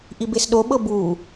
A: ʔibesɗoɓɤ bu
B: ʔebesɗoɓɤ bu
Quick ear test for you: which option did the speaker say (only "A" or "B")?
A